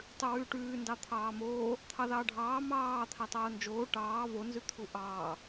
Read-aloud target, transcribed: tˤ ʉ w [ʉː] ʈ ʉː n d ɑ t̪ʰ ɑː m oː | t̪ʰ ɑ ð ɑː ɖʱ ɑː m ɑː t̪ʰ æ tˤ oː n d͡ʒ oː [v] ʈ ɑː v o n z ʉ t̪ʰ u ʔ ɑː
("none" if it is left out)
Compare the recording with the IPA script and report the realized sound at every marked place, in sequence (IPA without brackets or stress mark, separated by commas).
ʉː, none